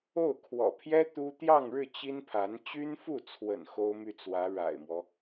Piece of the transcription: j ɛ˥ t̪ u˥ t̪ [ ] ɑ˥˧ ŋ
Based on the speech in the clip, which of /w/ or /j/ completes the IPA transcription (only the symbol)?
j